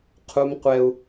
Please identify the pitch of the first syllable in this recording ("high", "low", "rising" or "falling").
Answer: high